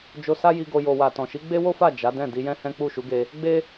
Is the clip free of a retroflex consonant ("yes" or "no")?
yes